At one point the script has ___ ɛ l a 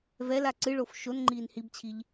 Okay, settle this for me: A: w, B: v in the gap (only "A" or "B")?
B